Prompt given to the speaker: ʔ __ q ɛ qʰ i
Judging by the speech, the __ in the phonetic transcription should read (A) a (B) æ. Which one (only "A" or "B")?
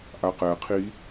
A